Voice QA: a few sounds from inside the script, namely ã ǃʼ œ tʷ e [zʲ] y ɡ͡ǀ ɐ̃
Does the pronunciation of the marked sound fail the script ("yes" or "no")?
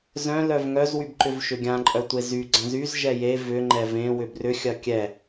yes